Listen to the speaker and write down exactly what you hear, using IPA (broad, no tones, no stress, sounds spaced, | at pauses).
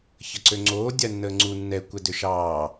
ç ə ǀ ø ŋ͡ǀ oː dʲ a nː əː ŋ͡ǀ u nː ɛ kʷ ɛ d ø ʃ ɑː